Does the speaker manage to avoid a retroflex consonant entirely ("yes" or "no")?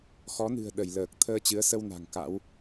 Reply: yes